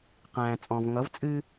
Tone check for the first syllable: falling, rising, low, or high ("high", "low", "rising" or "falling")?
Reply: low